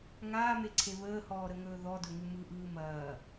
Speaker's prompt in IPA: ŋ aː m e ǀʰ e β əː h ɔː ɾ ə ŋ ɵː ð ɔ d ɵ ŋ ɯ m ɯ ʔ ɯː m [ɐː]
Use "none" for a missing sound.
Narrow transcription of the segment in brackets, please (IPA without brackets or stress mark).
ɐː